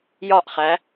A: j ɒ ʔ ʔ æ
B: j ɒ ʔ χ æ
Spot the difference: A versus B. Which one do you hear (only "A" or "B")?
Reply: B